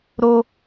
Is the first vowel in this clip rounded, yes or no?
yes